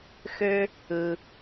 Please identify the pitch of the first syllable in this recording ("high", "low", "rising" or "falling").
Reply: high